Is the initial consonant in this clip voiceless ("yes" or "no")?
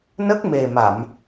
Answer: no